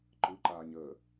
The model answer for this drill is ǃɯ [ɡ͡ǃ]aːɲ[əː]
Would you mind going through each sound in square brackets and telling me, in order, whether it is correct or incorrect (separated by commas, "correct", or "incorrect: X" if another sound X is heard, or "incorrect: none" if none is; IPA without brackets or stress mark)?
incorrect: ǃ, correct